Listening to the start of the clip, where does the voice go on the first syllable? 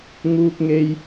high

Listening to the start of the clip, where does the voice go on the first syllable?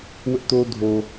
high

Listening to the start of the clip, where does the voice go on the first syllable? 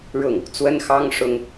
falling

